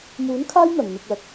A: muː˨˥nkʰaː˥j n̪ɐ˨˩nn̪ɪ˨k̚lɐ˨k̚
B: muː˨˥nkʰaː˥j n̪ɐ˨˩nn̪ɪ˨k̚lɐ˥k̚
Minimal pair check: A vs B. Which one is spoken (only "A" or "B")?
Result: A